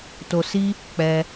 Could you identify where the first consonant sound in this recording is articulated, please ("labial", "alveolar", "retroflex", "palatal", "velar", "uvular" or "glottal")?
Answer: alveolar